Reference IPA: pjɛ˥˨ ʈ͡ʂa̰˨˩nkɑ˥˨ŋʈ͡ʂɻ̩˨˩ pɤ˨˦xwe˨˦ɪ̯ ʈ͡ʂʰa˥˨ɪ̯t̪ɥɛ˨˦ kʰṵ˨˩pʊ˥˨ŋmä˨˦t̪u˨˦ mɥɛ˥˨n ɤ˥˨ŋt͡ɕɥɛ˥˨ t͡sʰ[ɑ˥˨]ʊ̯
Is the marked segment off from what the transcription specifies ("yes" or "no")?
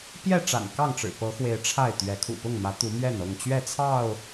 no